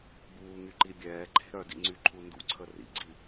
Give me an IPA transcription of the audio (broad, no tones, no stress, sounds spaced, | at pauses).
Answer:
b uː ŋ y ǃ i bʲ ɛː ǃʰ e̤ ɾ œ d ḭ ŋ͡ǀ y ǃʰ u n d ṵ ǀʰ ə r ḭ ɡ͡ǀ i